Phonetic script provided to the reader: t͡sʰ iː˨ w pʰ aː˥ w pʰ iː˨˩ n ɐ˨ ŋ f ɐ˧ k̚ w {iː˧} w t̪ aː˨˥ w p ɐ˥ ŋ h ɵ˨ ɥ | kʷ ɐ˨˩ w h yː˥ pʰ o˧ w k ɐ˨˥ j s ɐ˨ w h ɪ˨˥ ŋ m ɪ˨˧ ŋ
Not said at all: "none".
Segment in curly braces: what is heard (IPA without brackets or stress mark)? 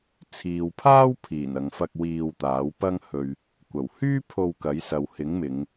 iː˧